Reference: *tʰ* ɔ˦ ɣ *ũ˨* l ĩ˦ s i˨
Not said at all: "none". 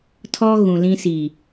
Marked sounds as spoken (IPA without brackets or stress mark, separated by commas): tʰ, ũ˨